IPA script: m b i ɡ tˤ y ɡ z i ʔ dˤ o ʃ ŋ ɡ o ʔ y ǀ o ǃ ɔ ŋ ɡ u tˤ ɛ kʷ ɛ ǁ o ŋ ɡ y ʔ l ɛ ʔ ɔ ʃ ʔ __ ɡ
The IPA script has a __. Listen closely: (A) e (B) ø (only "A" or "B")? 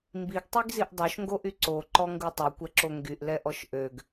B